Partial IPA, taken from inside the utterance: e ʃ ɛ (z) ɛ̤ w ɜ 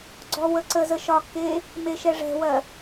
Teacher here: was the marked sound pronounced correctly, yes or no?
no